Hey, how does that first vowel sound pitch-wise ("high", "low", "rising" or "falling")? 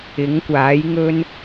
rising